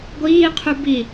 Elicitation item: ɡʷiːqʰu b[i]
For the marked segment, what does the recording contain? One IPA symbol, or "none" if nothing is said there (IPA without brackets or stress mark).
i